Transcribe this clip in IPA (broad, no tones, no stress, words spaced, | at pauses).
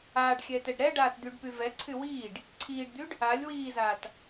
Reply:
aːɖxʲɛːt ɛɖɾɛɖaːt d̪yɖpyvɛǀʰy wiːɖ | ǀʰiːɖd̪yɖ | alʲ wiːzaːt